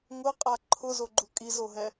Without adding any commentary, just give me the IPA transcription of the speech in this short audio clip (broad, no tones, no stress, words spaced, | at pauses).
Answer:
ŋʊqʼa ǃʰʊzoɡ͡ǃu kʼizoɦɛ